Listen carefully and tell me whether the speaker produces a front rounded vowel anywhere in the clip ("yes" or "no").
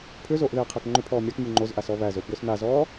yes